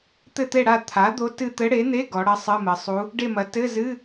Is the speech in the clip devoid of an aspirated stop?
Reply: no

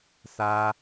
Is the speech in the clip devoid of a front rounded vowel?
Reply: yes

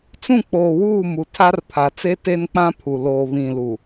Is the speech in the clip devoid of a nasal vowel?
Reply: no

